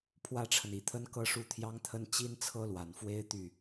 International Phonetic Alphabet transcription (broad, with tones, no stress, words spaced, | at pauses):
pʰwä˥ʈ͡ʂʰə˨ni˨˩t̪ʰə˥n kɤ˥˧ʂu˥˩t̪ʰjɑ˥ŋt̪ʰə˥n t͡ɕi˥nt͡sʰɤ˥lwa˨˩nfwe˥ɪ̯ t̪y˥˩